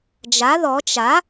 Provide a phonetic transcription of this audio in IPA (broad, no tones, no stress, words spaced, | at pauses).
d͡ʒa ðɔ t͡ʃa